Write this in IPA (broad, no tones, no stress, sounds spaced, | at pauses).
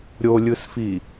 ɾʲ o lʲ ɯ s f i